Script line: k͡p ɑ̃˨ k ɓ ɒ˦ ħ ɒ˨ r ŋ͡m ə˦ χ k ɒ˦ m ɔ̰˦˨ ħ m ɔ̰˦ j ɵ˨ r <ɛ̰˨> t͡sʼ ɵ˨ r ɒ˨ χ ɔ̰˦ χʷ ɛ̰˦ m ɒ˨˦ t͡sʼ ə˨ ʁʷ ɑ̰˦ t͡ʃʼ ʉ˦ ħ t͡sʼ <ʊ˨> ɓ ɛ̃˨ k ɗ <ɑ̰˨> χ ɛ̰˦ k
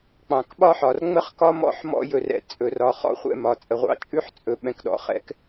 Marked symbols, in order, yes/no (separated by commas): yes, no, no